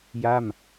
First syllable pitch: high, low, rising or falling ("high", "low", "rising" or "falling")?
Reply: falling